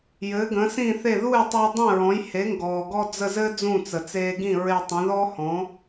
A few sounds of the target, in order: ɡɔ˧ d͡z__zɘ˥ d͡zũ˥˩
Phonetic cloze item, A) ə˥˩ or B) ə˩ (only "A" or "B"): A